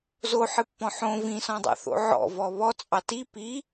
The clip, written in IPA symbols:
z o ħ ɨ pː ɔ̃ ħ õ v ĩ s ɔ̃ dˤ ɑ̰ θ o̰ ʕ ɔ̰ v ɔ β ɔ t͡sʼ ɑ t i p i

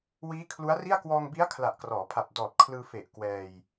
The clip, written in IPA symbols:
w iː˦˥ kʰ l u˦˥ a̯ r i˥˩ a̯ k w ɔː˧ ŋ b i˦˥ a̯ kʰ l a˨˩ ʔ k r ɔː˩˦ pʰ a˨˩ p̚ d ɔː˨˩ t̚ kʰ l ɯː˧ f e˨˩ ʔ k w ɛː˧ j

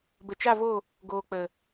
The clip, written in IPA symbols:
b ə˨ t͡ʃ a˦˨ v o˦˨ | ɡ oː˨ k͡p ə˨

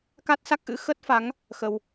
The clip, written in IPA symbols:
k a˦˥ t̚ s a˦˥ k̚ ʔ ɨ̰˧˥ x ə˦˥ t̚ f a˨˦ ŋ | x ə˧ w

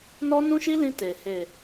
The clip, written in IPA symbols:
n ɔ˦ n ũ˦ ʃ i˦ l ĩ˧ t e˨ h e˨

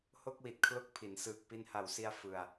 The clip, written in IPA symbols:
h o˥˩ k̚ w i˨˩ t̚ kʰ l o˦˥ k̚ pʰ i˩˦ n s ɯː˨˩ k̚ p i˧ n h a˨˩ w s i˧ a̯ f ɯ˧ a̯

